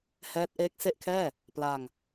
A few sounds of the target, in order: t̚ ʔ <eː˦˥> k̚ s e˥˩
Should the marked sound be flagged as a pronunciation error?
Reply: no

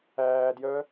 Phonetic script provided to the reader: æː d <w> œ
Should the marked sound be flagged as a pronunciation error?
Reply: yes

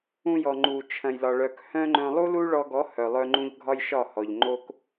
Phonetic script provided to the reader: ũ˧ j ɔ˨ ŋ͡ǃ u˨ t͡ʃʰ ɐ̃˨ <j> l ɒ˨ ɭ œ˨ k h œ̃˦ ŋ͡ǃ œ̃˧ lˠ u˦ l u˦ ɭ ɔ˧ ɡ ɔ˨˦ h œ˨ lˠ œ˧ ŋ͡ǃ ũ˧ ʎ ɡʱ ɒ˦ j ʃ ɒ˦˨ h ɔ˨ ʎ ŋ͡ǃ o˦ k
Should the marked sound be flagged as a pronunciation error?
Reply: no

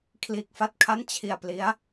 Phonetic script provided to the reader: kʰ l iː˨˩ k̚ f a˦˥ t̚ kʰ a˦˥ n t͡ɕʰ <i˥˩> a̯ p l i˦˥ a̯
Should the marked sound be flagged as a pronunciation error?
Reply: yes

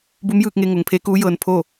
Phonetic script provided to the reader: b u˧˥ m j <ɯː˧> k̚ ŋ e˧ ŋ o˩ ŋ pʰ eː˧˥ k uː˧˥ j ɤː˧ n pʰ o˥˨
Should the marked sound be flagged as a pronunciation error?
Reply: no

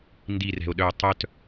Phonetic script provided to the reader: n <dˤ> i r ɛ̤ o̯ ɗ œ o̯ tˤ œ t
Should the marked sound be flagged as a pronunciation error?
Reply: yes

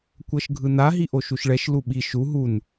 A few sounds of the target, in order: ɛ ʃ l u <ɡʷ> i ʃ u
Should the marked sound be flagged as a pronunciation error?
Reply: yes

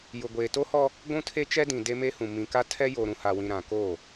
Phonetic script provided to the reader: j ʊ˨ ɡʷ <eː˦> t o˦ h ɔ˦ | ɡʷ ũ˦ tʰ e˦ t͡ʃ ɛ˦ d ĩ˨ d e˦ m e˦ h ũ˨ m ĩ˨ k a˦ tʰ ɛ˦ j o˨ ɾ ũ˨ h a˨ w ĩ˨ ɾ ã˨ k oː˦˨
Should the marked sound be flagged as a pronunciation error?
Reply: yes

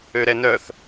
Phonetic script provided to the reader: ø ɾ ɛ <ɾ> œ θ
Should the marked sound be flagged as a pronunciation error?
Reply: yes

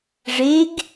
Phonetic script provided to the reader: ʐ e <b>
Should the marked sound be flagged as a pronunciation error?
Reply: yes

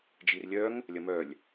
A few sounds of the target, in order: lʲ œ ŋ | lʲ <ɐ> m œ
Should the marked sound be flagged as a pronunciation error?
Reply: no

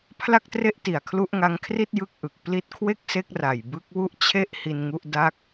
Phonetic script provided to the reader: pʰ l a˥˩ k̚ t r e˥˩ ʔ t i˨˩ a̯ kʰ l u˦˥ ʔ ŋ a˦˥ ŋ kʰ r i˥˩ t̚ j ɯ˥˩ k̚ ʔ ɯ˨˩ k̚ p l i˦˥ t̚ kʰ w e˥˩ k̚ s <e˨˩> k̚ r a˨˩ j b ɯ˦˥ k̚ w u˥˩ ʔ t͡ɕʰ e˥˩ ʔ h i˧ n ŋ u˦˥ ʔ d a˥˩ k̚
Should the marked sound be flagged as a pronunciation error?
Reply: yes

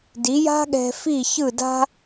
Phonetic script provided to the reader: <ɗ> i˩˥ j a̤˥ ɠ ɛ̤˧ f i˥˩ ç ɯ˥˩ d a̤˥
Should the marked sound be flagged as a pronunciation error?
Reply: yes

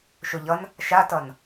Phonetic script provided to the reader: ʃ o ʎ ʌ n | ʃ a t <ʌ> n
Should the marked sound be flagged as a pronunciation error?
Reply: no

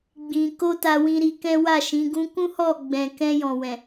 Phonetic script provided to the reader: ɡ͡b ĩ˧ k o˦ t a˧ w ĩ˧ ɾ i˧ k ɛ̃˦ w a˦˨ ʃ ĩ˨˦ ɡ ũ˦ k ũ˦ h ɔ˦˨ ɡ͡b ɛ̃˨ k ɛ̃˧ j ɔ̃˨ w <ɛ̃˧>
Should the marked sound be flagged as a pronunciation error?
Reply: yes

